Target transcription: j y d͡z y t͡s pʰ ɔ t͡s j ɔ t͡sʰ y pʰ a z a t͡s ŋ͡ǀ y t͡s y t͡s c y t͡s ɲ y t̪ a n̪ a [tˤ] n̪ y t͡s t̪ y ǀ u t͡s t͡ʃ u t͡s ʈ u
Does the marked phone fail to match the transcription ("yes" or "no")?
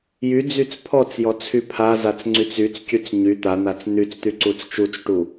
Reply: yes